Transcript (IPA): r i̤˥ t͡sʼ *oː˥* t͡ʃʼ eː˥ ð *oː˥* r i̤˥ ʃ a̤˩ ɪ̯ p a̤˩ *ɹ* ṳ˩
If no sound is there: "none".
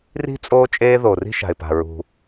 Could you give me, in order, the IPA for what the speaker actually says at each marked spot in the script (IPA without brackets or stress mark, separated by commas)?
oː˥, oː˩, ɹ